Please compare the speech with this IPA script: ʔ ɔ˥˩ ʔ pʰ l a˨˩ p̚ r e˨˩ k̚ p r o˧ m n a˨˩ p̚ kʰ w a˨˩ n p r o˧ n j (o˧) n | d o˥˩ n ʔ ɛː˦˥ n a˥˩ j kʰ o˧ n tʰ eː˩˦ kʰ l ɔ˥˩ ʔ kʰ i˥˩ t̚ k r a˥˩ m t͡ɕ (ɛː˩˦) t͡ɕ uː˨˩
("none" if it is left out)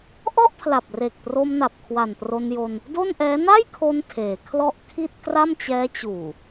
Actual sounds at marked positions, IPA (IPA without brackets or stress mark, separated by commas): o˧, ɛː˦˥